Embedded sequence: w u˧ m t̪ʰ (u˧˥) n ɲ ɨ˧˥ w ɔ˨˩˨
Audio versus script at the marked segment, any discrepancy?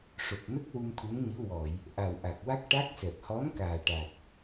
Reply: no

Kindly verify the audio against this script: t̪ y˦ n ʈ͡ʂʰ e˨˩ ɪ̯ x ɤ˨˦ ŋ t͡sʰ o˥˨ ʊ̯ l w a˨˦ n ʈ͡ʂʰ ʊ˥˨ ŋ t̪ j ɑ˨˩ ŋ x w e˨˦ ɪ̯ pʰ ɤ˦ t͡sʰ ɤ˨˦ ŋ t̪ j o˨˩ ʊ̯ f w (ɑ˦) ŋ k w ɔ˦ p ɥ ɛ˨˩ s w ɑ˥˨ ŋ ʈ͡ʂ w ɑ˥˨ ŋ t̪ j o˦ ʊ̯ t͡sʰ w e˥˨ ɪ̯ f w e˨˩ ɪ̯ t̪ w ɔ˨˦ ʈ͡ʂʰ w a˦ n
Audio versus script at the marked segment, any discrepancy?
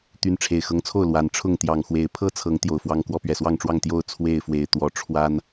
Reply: no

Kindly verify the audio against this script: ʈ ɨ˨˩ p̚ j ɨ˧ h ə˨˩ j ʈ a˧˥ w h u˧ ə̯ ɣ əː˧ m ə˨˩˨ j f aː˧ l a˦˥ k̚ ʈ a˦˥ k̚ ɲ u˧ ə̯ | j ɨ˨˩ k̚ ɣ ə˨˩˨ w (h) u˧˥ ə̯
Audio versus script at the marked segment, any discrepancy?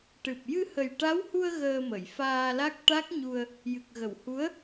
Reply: no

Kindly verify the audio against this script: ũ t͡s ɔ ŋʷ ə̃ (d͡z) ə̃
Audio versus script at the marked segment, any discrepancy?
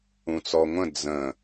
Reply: no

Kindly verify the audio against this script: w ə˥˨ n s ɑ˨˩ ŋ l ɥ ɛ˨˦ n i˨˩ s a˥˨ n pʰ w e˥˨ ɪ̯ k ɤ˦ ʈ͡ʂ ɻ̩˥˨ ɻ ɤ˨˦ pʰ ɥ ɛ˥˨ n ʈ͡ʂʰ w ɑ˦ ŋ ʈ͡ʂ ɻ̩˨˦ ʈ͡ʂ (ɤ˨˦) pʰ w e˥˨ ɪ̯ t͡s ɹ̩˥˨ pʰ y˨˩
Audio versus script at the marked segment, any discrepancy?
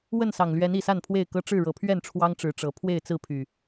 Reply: no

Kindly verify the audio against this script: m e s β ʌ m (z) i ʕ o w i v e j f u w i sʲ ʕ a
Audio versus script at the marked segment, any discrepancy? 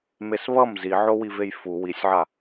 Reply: no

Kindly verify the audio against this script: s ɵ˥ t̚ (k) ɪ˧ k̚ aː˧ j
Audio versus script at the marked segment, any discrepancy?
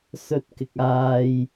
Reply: no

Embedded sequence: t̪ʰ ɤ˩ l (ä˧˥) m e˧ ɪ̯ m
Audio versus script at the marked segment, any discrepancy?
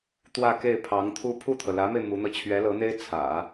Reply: no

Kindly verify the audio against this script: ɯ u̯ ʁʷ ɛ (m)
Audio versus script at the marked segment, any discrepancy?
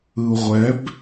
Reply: yes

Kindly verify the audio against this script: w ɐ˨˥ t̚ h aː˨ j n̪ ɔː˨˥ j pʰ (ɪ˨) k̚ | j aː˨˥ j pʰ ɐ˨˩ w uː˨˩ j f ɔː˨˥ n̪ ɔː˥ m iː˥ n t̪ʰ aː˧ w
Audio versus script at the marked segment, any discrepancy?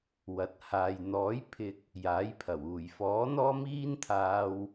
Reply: no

